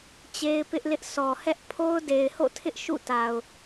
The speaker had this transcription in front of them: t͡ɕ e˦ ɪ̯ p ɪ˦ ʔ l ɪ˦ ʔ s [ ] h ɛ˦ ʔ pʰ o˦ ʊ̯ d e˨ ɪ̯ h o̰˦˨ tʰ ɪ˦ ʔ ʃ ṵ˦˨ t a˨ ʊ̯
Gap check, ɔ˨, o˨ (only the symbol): ɔ˨